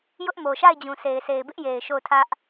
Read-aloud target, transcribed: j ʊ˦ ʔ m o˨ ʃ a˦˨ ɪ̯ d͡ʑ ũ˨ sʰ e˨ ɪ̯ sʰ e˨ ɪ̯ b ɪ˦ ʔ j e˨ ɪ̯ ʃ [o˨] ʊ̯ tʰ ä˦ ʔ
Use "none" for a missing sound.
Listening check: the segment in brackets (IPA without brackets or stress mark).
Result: o˦˨